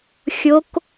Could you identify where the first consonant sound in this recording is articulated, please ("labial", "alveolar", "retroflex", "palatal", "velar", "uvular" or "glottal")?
velar